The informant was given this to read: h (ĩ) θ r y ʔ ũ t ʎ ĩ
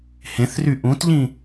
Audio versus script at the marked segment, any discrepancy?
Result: yes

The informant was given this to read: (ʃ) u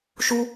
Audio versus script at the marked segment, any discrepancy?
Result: no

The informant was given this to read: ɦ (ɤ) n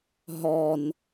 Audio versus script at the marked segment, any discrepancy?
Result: yes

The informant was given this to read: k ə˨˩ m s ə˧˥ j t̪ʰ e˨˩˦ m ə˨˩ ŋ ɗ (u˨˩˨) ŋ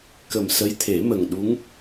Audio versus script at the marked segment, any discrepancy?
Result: yes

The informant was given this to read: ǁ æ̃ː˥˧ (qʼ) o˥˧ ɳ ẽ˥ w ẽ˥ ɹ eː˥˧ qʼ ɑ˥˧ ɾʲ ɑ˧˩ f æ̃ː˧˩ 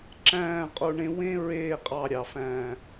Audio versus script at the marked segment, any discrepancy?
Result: no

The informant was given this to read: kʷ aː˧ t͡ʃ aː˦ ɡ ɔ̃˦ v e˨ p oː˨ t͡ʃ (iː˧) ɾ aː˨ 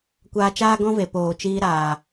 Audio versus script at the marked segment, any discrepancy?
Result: no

